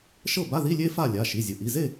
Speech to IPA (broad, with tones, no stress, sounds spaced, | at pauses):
ʃ ɤ˥˨ b a˧˥˧ ð i˧˥˧ lʲ e˥ f a˥˨ lʲ a˩˧˩ ʃ i˩˧˩ zʲ ɯ˩ ʔ i˩˧˩ z e˥˨